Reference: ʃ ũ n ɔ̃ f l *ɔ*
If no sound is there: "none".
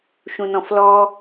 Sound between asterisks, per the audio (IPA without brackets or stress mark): ɔ